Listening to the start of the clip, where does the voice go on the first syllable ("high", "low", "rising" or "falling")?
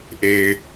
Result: low